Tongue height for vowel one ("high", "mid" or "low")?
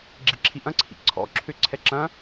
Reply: high